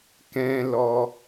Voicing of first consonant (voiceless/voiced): voiceless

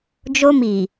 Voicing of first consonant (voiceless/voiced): voiced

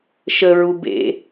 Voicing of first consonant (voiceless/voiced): voiceless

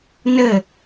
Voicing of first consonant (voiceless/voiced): voiced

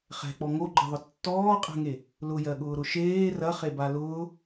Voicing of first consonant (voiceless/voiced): voiceless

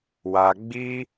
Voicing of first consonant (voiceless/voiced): voiced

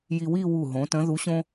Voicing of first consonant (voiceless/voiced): voiced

